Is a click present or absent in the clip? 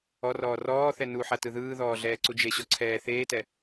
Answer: present